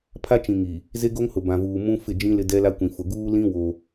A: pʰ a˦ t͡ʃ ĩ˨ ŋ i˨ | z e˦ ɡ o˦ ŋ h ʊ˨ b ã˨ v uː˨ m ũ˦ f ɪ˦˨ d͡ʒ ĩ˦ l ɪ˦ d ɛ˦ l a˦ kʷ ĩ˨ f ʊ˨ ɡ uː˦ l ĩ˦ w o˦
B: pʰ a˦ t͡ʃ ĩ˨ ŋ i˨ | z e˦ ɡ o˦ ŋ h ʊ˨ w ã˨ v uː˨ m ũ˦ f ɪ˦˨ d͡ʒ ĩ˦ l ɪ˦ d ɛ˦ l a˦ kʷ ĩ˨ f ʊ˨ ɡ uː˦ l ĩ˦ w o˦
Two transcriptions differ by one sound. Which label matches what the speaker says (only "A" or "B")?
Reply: A